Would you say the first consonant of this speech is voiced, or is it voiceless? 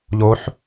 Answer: voiced